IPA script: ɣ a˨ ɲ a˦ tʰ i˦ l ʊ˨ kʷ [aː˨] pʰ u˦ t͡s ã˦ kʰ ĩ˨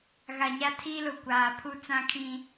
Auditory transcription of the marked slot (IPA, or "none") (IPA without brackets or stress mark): aː˨